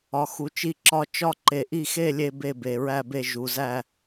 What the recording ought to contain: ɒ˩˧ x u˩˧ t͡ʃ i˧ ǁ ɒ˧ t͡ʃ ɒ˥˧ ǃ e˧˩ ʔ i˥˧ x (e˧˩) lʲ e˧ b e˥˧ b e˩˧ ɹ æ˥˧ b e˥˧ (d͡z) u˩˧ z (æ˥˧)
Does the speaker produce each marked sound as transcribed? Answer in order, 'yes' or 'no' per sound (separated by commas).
no, no, yes